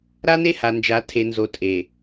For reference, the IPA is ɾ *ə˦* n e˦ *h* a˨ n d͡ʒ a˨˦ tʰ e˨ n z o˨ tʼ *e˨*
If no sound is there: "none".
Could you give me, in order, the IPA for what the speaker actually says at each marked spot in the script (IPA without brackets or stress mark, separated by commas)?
a˦, h, e˨